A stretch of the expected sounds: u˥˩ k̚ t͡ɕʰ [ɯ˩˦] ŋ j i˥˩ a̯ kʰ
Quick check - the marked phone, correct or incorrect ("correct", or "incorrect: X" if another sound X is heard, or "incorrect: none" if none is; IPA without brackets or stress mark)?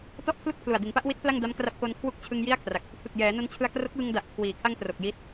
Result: incorrect: ɯ˧